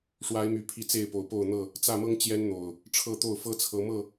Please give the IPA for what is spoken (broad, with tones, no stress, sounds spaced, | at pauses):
ʂ w a˨˦ ɪ̯ m y˨˩ pʰ i˨˦ t͡s e˥˨ ɪ̯ p o˨˩ ʊ̯ p o˥˨ ʊ̯ n̪ ɤ˥˨ | t͡s ä˥˨ m ɤ˦ ŋ t͡ɕ j ɛ˦ n n̪ o˨˩ ʊ̯ | ʈ͡ʂʰ ɤ˥˨ t̪ o˥˨ ʊ̯ f ɤ˦ t͡sʰ ɤ˨˦ m ɤ˥˨